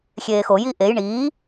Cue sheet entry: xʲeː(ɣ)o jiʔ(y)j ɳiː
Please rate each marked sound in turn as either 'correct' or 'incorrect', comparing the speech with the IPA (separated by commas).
incorrect, incorrect